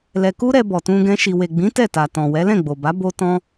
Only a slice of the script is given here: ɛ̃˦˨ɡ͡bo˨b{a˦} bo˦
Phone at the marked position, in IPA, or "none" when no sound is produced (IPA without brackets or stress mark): a˨˦